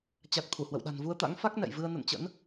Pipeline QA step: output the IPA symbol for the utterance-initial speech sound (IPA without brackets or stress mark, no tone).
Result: t͡ɕ